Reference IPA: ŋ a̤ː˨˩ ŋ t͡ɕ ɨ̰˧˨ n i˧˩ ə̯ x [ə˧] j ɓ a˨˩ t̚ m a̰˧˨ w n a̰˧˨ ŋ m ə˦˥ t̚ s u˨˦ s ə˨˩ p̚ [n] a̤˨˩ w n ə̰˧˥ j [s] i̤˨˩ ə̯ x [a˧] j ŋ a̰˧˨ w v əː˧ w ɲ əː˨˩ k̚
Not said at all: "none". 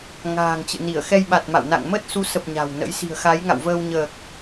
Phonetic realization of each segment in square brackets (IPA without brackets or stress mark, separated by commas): ɛ˧, ɲ, s, a˨˦